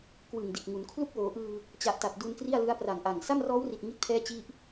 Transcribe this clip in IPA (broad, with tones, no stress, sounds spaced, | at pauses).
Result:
k w ɯ˨˩ ŋ d i˨˩ t̚ ŋ u˩˦ n kʰ l u˥˩ k̚ w oː˩˦ ʔ ɯː˧ | t͡ɕ a˨˩ ʔ t a˨˩ t̚ d u˧ n k r i˥˩ a̯ l ɯ˦˥ a̯ p r a˨˩ ŋ ʔ a˨˩ ŋ s a˥˩ m r ɔː˦˥ w r i˨˩ t̚ ŋ i˥˩ t̚ pʰ ɛː˥˩ t͡ɕ i˥˩ ʔ